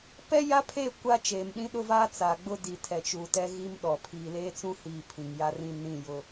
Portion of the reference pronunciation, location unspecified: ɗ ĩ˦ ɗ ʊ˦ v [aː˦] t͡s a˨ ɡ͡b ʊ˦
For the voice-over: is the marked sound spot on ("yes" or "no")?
yes